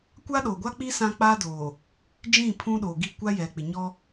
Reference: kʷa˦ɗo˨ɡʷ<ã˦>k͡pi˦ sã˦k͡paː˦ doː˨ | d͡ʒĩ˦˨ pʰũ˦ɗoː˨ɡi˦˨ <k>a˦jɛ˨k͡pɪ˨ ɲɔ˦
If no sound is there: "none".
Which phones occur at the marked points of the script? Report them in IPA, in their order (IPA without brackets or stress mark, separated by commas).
a˦, kʷ